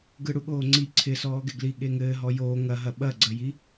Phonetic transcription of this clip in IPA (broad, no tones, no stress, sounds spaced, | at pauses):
ɡ ɯ ɽ u ɠ oː ŋ͡ǀ i ǀʰ ɪ s ɔː ɡ ɪ ɡ l i ɠ e ŋ ɘː ɦ ɔ j oː ŋ ɐ ɦ ɐ ɓ ɐ ɡ͡ǀ ə j i